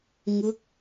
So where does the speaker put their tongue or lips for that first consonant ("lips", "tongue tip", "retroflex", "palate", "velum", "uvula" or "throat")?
velum